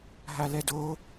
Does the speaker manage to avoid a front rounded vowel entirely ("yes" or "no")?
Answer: yes